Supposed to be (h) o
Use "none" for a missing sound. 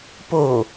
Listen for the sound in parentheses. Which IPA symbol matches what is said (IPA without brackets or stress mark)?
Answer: p